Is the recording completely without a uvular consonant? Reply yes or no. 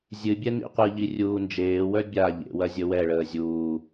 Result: no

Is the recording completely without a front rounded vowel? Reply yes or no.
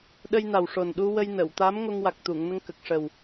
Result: yes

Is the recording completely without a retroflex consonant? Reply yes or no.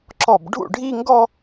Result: no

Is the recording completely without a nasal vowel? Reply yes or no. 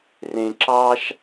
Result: no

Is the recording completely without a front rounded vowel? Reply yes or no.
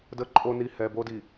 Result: yes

